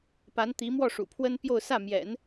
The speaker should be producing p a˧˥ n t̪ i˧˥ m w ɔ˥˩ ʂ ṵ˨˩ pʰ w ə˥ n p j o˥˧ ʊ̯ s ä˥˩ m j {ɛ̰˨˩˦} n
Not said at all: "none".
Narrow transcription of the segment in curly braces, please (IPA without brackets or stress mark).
ɛ̰˨˩˦